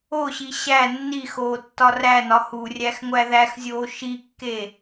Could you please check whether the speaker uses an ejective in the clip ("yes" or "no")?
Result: no